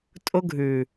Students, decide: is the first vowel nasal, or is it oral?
oral